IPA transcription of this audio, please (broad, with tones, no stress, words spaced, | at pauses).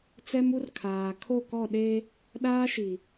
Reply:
t͡sɛ˦mu˦r kʰaː˨ kʰo˦˨kɔ˦˨ ɗe˦ | ɗaː˦ʃi˨